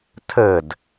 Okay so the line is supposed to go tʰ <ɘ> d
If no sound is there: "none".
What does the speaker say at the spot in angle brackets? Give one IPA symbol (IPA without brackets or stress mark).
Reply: ɘ